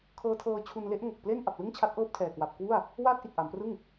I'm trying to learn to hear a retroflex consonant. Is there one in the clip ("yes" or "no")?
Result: no